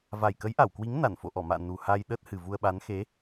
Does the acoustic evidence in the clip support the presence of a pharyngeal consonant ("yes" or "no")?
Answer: no